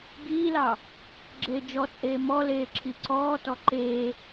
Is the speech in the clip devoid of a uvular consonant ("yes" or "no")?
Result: yes